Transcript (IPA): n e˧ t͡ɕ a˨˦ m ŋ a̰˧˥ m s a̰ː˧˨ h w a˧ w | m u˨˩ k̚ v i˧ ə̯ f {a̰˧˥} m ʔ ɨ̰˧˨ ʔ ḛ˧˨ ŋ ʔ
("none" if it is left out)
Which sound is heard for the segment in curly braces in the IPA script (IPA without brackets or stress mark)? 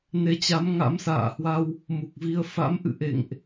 a̰˧˥